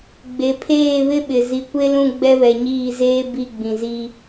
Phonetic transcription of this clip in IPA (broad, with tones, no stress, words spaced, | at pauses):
ɡ͡be˨pʰeː˦˨βɪ˦ɓɪ˨ zi˨kʷe˦lũ˦˨ ɡ͡bɛ˦βɛ˨ɲiː˦˨zeː˦ bi˦˨ɡ͡bĩ˨zi˦